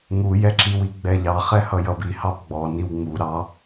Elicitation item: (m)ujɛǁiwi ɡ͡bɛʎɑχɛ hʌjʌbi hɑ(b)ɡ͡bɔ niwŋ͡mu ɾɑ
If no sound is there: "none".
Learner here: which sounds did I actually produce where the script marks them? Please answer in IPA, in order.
ŋ, b

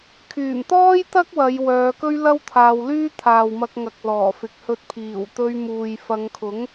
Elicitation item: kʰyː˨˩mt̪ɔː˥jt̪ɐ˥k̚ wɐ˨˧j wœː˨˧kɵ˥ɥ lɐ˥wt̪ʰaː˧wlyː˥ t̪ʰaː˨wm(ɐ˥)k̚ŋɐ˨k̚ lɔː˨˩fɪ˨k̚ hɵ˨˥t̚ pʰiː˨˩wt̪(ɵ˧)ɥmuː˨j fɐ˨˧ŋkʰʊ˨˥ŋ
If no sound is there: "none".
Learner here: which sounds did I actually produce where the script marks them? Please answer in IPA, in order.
ɐ˧, ɵ˧

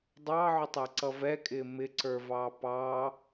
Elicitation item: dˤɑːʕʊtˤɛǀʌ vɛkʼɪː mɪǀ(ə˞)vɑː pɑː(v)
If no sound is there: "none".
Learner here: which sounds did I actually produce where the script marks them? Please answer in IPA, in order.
ə˞, none

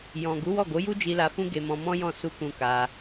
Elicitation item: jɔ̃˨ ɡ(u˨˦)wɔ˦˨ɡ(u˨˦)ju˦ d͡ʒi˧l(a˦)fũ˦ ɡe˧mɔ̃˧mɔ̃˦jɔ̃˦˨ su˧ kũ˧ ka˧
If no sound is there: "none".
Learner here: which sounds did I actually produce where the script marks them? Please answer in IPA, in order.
u˨˦, o˨˦, a˧

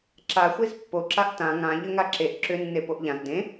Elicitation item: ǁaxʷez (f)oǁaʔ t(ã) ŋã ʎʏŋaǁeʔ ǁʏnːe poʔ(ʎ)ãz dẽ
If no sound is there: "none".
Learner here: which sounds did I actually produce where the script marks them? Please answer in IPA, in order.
pː, ã, ʎ

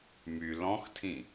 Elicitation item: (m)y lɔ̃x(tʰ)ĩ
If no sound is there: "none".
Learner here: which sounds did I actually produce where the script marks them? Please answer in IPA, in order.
m, tʰ

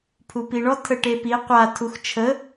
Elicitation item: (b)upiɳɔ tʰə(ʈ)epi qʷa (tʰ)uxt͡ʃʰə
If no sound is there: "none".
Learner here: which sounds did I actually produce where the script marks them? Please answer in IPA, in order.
pʰ, ʈ, tʰ

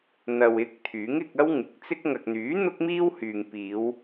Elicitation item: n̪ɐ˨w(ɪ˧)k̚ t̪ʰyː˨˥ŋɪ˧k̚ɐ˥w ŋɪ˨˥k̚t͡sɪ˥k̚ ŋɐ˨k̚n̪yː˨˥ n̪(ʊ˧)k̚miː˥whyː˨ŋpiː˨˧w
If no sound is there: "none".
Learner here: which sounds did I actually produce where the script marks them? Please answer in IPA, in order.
ɪ˧, ʊ˥

